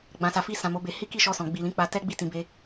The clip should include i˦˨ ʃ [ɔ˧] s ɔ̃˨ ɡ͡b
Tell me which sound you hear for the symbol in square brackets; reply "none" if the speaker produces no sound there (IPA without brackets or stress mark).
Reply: ɔ˧